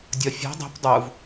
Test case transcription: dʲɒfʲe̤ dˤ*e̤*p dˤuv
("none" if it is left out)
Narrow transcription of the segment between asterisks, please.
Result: i̤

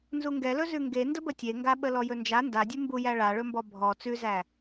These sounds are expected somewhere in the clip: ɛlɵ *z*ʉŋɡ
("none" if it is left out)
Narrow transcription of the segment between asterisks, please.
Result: z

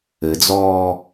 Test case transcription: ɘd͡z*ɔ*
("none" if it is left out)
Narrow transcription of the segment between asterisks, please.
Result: ɔː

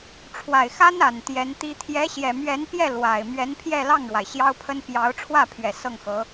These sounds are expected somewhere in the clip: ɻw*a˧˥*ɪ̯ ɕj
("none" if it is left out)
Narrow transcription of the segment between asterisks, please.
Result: a˩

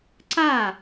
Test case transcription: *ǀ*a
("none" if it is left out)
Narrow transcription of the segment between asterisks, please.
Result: ǀ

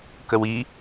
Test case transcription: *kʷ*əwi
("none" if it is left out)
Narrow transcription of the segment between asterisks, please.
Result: k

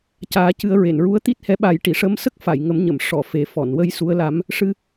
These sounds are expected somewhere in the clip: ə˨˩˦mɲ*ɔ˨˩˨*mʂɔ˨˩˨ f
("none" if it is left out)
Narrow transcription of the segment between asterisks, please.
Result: ə˨˩˨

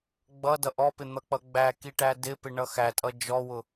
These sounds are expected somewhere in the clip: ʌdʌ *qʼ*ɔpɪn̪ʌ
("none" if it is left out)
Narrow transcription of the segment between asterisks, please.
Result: ʔ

